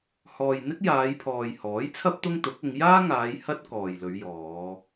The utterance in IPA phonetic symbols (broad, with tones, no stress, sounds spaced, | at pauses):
h ɔː˨ j n̪ ɪ˥ k̚ j aː˨˧ j pʰ ɔː˨ j h ɔː˨˥ j t͡sʰ ɐ˥ p̚ t̪ ʊ˥ ŋ t̪ ʊ˨˥ k̚ ʊ˨˧ ŋ j aː˥ ŋ aː˨˧ j h ɐ˥ t̚ k ɔː˨ j l ɵ˨˧ ɥ j ɔː˨˧